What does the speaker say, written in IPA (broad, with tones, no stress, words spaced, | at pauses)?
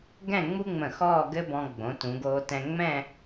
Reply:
ɡɛ̃˥˧ŋ͡mu˥ŋ͡mə̃˧˩ xɔː˥˧ɡɘ˥bɔ̃˧ ɡ͡bõ˩˧tũ˩˧ɡoː˧tɛ̃˧ ŋ͡mɛ̃˥˧